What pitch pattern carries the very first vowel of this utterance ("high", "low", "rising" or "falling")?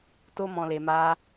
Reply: high